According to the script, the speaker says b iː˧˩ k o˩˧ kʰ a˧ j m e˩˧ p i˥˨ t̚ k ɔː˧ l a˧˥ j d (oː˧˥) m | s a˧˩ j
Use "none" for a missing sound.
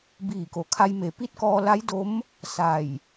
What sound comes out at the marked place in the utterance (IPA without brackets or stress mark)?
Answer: o˧˥